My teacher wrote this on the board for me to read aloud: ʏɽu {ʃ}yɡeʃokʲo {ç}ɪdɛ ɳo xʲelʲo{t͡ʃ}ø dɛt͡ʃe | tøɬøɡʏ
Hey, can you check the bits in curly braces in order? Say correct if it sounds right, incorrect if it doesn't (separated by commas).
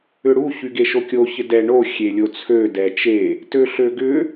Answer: incorrect, correct, incorrect